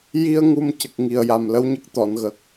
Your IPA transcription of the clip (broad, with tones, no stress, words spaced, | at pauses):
ji˧ə̯ ŋu˧mcə˨˩k̚ ŋi˨˩ə̯ja˨˩mlə˧˥wɲə˦˥k̚ t̪ɔ˨˩˨nɣə˨˩k̚